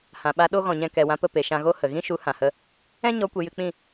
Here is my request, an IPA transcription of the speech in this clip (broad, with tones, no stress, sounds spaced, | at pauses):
h ã˨ ɓ a˧ ɗ o˦ ɣ ɔ̃˨ ɲ ɛ̃˧ k ɛ˨ w ã˧ p ə˦˨ p e˨ ʃ ã˧ ɣ o˦ h ə˨ ɣ ĩ˦ ʃ u˨˦ h ã˨ h ə˦ | ɛ̃˦ ɲ ɔ˨˦ kʷ e˨ j ɨ˧ k͡p ĩ˦˨